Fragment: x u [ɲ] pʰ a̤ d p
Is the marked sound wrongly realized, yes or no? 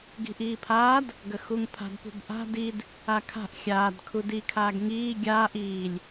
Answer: yes